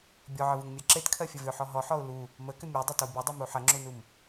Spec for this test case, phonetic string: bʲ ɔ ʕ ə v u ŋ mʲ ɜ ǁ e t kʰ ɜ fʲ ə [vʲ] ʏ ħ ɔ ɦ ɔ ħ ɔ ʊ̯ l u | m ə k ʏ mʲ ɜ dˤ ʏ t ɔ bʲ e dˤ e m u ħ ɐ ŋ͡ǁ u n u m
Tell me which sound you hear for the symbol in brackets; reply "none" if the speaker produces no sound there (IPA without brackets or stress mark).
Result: v